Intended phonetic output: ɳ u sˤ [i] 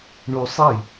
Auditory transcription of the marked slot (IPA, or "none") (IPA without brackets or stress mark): i